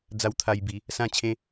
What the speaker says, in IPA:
d͡z a˧ w t̪ʰ a˧ j b i˨˦ | s ã˥˧ t͡ɕʰ ẽ˦

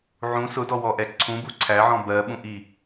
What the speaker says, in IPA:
ʕ ũ s ʊ d ɔ w ɔ ʔ ɛ ǀʰ ũ b u ǀʰ æ ʕ ɔ̃ b ɜ ɓ ũ ʔ i

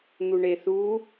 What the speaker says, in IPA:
n̪ u ɳ e θ u

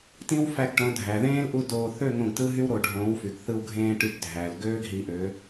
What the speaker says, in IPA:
t ĩ˦ w f æ˧ ɡ ʈ õ˨˦ dʱ æ˨ ð ẽː˦ l ʔ u˦ d oː˧ θ ø˦˨ ŋ õ˧ ɡ t ɯ˦ ɦ y˦ w ɾ o˨ ɖʱ õː˨˦ w f y˨ ɡ θ ɯ˧ w ɡʱ ẽː˧ ʈ y˨˦ ɡ dʱ æ˨ l ɡ øː˦ ɡ ɦ i˨˦ ʔ ø˨˦

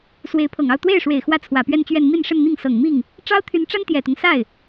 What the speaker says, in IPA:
s w e˧˥ ɪ̯ pʰ ɤ˨˩ ŋ ɑ˥˧ ʊ̯ t̪ w e˥˩ ɪ̯ ʂ w e˨˩ ɪ̯ x w ä˥˩ t͡sʰ w ä˨˩ p ɥ ɛ˥˧ n t͡ɕ ɥ ɛ˥˧ n m i˥˧ n ʂ ə˥˧ n n̪ i˥˩ ŋ s ɤ˨˩ ŋ m i˥˩ ŋ | ʈ͡ʂ ɑ˥ ʊ̯ t̪ʰ y˧˥ n ʈ͡ʂ a˥ n t̪ j ɛ˨˩ t̪ ʊ˦ ŋ s a˥˩ ɪ̯

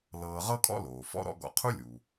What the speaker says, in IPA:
l ɤː˨ ʁ ɤ˦ kʼ ɔ̰˥ l oː˩ f ɔ̰˥ ɾ ɔ̰˦ ɡ ɔ̰˦ qʰ u˥ lʲ uː˩

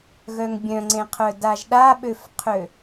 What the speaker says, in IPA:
ɣ œ ŋ bʲ œ̃ ŋ͡ǀ ẽ qʰ œ d a ʒ ɗ a ɓ ø f qʰ ø

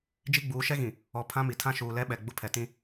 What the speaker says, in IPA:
d͡ʒ i˦ ɡ͡b uː˨˦ ʃ ɛ˦ ɣ ĩ˨ | ɔ˨ pʰ ã˦ m i˨ tʰ ã˦ ʃ uː˨ l ɛ˦ ɓ ɛ˨ ɡ͡b ʊ˦ pʰ ɛ˨ t ĩ˦

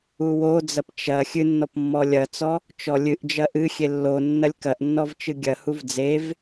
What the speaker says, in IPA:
u w o d͡z ɐ p t͡ʃ ɐ xʲ ɨ nː ɔ p mː ɔ lʲ ɐ t͡s ɔ | t͡ʃ ɔ lʲ ɨ ʔ d͡ʒ ɐ ʔ ɨ xʲ e lː o nː ɐ lʲ k ɐ ʔ nː ɔ v t͡ʃ ɨ ɡʲ ɐ h u v d͡z e v

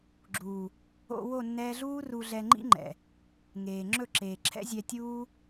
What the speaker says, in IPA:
ɡ͡ǁ uː˨ | o̰˧ w o˦˨ nː ɛː˧ ɮ uː˦ r u˨ ɮ ɛ˨ ŋ͡ǃ ḭ˦ ŋ͡ǃ ɛ̰˨ | ŋ eː˨ ŋ͡ǁ ɵ˦˨ ǁ eː˨ ǁʰ ɛ̰˦ zʲ ɛ˧ tʲ uː˦

